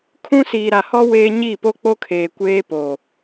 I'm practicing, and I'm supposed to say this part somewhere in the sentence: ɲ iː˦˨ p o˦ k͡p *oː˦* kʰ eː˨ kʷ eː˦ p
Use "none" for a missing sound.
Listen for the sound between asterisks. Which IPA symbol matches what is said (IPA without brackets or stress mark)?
o˦